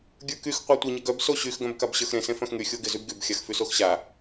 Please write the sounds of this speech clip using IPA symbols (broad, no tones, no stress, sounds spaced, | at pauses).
ɡʲ ə˞ k y x qʷ a tʷ ɪ ɲ ɪ ɡ œ b s o ɕ y x ɡ œ̃ b k a b ɕ ə˞ x ɾ ẽ s ẽ f œ̃ x ŋ y xʲ o ɡ ɪ z y b ɡ y b xʲ a x f y s o x ɕ a